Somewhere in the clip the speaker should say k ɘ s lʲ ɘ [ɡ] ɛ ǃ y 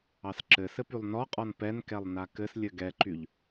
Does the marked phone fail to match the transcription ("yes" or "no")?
no